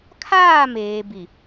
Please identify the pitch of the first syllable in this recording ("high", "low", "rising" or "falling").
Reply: falling